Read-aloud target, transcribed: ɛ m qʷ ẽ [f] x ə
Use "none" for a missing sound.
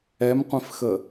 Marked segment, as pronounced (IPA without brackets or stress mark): f